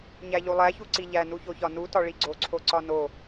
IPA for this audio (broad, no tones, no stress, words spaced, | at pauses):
ɲæʎulˠæ çuǀiʎæ nuçoçɒnu tɒɭiɡ͡ǀo ǀʰoǀɒno